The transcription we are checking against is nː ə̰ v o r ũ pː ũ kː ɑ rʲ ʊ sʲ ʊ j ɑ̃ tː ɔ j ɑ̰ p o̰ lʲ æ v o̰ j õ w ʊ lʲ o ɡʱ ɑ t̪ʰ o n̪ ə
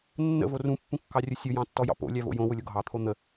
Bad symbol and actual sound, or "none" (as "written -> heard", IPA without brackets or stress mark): none